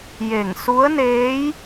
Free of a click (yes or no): yes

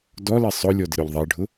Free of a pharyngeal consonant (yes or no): yes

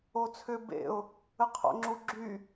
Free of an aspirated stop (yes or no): no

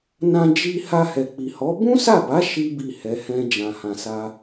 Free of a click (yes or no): yes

